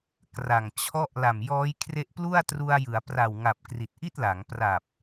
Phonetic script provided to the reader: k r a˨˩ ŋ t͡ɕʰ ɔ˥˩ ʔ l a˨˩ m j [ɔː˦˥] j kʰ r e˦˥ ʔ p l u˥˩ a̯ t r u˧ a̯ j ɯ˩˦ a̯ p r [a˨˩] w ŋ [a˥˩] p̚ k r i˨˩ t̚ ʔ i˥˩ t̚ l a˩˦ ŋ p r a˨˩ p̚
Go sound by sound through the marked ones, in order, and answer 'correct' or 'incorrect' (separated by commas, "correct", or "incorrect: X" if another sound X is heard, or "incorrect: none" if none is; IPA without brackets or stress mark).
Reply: correct, correct, incorrect: a˨˩